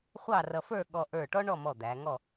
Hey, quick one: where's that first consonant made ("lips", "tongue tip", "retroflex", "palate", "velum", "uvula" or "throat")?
uvula